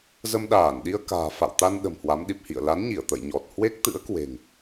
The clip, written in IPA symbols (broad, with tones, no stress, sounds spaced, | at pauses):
z ə˧ m ɗ aː˧˩ n ɗ i˧ ə̯ k a̤ː˨˩ f a̰˧˨ w t̪ a˧ n ɗ ə̤˨˩ m h w a˨˦ m ɗ i˨˩ p̚ h ḭ˧˨ ə̯ l a˨˦ n ɲ i˧˩ ə̯ t̪ ə̰˧˨ j ɲ ɔ˨˩ t̚ h w e˦˥ k̚ t̪ ɨ̰˧˥ ə̯ k w e̤˨˩ ŋ